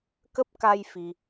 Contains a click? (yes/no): no